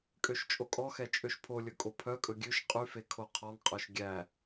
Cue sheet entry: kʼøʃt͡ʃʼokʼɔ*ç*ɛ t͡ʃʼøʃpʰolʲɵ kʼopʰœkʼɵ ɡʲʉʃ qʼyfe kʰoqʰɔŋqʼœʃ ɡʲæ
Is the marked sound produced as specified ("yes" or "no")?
no